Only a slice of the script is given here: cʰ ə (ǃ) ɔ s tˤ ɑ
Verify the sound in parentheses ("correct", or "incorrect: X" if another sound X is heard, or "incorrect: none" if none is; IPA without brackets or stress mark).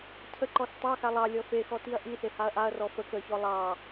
correct